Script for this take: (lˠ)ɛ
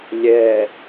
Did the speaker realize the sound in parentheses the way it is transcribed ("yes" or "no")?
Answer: no